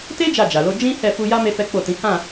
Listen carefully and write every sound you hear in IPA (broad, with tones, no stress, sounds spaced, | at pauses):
t e˦ d͡ʒ a˦˨ d͡ʒ a˨ l o˨˦ d͡ʒ ĩ˦ h ɛ˦˨ f u˧ j a˦ m e˦ f ɛ˦ k͡p o˦˨ t ĩ˨˦ h ã˦˨